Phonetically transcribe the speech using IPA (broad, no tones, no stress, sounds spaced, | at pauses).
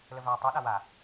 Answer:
l ə v aː tˤ u ɗ a w a